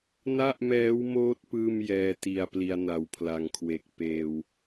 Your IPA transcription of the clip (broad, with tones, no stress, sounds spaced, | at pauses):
n a˥˩ ʔ m ɛː˦˥ w m oː˦˥ t̚ p ɯː˥˩ m j ɛː˧ t i˨˩ a̯ p l i˧ a̯ n a˨˩ w pʰ l a˨˩ ŋ kʰ w e˨˩ k̚ p eː˧ w